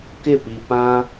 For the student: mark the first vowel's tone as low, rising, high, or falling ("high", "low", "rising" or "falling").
falling